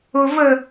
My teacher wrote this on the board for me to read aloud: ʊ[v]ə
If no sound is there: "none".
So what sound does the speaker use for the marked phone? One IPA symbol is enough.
v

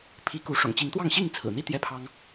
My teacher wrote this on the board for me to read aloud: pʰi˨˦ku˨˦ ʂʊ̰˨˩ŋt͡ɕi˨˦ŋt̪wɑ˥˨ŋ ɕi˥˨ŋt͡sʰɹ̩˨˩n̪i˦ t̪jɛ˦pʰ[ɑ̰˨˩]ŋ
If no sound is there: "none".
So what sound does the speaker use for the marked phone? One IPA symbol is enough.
ɑ˦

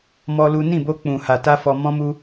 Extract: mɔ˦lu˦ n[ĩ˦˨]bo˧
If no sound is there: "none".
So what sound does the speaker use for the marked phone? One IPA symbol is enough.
ĩ˦˨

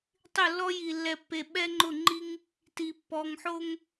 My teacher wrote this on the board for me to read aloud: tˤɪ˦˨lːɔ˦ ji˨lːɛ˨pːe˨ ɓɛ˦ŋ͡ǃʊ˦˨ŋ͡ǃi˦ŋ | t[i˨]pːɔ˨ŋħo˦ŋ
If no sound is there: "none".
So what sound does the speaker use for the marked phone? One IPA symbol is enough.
i˨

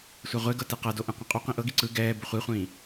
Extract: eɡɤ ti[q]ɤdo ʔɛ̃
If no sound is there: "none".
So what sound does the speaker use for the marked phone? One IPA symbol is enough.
q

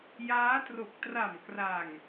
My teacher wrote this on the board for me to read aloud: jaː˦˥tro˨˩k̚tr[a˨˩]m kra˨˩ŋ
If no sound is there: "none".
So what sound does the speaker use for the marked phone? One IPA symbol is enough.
a˨˩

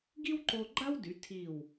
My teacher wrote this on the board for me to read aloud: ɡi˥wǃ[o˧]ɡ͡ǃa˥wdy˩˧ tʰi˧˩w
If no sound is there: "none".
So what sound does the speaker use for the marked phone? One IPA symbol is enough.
o˧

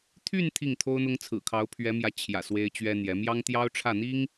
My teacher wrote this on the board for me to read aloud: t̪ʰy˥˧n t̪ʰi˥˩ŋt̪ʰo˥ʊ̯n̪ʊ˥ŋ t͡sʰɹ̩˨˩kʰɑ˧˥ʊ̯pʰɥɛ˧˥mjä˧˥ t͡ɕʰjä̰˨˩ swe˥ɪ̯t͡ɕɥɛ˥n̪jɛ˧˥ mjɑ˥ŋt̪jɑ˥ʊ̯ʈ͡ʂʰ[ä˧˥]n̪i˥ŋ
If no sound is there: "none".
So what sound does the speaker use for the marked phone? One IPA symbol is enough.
ä˥˩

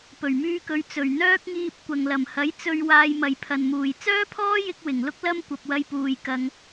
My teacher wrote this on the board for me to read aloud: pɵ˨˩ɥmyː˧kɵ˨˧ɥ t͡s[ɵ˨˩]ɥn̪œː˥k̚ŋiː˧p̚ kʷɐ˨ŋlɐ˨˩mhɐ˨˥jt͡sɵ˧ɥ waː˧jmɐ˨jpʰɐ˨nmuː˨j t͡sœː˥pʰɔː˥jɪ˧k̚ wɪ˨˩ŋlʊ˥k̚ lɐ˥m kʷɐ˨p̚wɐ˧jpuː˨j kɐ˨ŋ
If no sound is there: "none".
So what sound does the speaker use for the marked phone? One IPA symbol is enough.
ɵ˨˩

